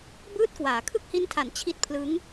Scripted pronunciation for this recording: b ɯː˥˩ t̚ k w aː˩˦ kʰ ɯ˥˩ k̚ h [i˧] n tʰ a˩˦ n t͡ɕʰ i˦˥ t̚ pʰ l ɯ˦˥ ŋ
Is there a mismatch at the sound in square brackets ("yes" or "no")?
yes